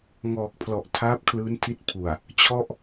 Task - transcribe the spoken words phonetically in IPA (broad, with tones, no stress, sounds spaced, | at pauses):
ŋ ɔː˨˩ k̚ pʰ l ɔ˨˩ ʔ tʰ aː˦˥ p̚ kʰ l ɯː˦˥ n tʰ i˦˥ t̚ pʰ u˨˩ a̯ | t͡ɕʰ ɔ˥˩ ʔ